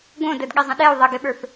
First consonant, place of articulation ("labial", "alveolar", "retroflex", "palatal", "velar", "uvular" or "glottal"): velar